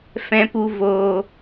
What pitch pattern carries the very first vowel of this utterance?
low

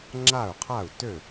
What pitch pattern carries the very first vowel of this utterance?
falling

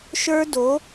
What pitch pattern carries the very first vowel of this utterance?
high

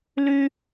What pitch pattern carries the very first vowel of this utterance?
high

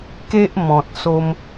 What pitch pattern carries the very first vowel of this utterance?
high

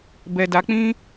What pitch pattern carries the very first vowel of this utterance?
low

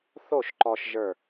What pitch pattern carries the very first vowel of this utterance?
falling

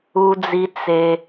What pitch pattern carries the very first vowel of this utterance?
low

